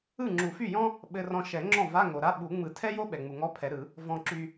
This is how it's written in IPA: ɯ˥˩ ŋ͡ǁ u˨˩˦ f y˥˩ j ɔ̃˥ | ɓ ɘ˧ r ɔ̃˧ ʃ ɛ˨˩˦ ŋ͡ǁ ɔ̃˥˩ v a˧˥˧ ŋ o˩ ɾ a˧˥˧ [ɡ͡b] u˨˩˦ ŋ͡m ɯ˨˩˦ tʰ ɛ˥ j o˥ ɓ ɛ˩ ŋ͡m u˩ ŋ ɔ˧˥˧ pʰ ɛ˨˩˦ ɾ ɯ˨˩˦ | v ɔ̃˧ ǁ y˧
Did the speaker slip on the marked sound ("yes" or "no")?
yes